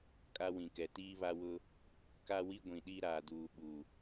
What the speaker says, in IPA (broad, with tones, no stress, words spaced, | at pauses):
kʼa˦wĩ˨kɛ˨ tiː˦βa˦wʊ˦ | ka˦wi˦ ɡʷĩ˨ɗi˦ ɾaː˨duː˨ ɓu˨